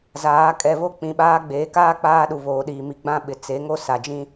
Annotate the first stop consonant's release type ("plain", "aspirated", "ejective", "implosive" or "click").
ejective